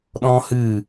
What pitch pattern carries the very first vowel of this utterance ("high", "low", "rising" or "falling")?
high